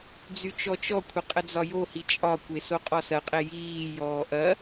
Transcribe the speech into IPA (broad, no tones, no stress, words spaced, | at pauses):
d͡zyt͡ʃɔt͡ʃɔkʷʰə qʼəd͡zɒjohi t͡ʃʼɒkʷe soqʼɔsɐqʼe jiːjɔː ʔɐ